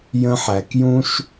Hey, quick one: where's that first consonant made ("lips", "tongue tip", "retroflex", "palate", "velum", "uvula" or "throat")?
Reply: palate